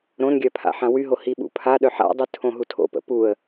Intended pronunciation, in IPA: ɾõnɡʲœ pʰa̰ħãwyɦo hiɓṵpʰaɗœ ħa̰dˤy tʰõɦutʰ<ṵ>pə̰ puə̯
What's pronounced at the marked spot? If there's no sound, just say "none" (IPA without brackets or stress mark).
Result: o̰